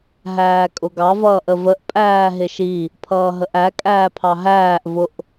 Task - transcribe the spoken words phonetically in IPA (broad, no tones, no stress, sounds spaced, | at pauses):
ɦ æː kʼ ʊ ɡ ɑ v ʌː ʔ ə v ə ʔ pʼ æː ɦ ɪ ʃ i | pʰ ʌː ɦ ə ʔ æ kʼ æː pʰ ɑ ɦ æː ʔ v ʊ ʔ